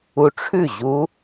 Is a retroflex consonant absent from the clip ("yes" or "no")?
no